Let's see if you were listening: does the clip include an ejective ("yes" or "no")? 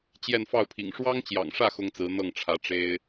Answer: no